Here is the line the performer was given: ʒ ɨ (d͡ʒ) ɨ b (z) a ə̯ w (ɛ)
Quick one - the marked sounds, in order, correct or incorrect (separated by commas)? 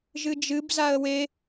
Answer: correct, correct, incorrect